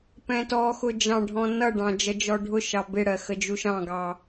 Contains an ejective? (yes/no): no